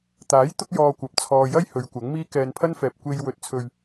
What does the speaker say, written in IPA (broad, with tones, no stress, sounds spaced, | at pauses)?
t̪ aː˨˥ j t̪ ʊ˥ k̚ j ɔː˧ kʷ ɐ˨ p̚ t͡sʰ ɔː˧ j ɐ˥ j h ɵ˨˧ ɥ kʷ ɐ˨˥ ŋ m iː˥ k ɛː˧ n pʰ ɐ˥ n f ɛː˨ p̚ kʷ e˧ j w ɵ˨ t̚ t͡sʰ ɵ˨ ɥ